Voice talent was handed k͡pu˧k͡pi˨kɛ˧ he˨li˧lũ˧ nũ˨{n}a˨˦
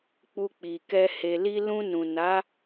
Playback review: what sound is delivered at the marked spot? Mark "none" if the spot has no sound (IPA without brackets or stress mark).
n